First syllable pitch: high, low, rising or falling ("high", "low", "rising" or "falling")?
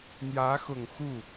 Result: rising